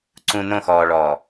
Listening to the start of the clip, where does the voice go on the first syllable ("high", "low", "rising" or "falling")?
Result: low